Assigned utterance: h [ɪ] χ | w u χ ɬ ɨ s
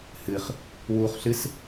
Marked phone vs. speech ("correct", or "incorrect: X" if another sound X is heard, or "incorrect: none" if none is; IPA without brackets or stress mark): incorrect: ɨ